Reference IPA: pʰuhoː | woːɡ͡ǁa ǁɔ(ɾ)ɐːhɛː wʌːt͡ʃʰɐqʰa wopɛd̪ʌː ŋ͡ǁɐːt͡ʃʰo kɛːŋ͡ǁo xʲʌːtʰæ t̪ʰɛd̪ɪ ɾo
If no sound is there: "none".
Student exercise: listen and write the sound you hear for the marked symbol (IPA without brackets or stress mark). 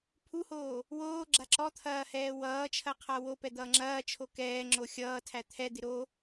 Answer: t̪ʰ